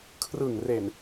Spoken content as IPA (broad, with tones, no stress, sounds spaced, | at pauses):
kʰ r ɯ˨˩ ŋ r e˨˩ n